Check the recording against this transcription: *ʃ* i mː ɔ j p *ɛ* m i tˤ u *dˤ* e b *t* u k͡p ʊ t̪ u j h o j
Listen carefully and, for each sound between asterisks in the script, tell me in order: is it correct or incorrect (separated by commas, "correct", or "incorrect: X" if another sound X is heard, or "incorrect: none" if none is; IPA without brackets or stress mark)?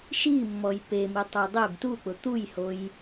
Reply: correct, incorrect: e, correct, correct